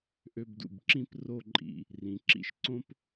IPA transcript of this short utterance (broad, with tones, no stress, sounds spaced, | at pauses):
ʔ ø˧ b d ṵ˧˩ b ǁ ĩ˥˧ p r o˥˧ ǃʼ ḭ˧ | r ĩ˩˧ ǁ ḭ˥˧ ʃ ǀ õ˥ p